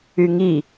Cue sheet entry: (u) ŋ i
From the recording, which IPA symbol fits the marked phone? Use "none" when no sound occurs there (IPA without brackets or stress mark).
y